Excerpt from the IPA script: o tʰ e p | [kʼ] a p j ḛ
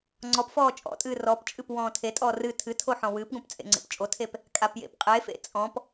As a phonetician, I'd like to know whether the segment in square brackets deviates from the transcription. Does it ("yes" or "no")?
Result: no